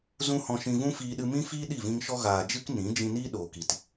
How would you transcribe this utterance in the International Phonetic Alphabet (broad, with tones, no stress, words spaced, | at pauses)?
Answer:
zũ˦hɔ̃˧ ʃĩ˧vũ˦fiː˧ɗɨ˧ mĩ˦fiː˦ ɗi˦˨vĩ˧ŋ ʃɔ˧ɣaː˨ d͡ʒɨ˦k nĩ˨˦d͡ʒĩ˧niː˦ ɗoː˨ ki˨t